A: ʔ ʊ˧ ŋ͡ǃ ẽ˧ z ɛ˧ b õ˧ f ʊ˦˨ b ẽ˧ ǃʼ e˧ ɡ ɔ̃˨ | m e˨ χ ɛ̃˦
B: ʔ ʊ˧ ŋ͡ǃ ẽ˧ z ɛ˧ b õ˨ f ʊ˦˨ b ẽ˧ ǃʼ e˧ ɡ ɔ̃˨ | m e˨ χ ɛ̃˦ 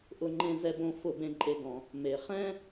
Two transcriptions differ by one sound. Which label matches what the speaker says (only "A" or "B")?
A